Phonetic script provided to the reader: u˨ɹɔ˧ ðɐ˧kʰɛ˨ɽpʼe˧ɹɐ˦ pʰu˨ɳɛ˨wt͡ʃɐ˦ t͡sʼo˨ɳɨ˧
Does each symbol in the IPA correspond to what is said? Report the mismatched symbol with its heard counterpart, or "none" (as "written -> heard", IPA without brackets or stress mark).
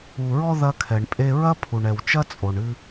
ɽ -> ɳ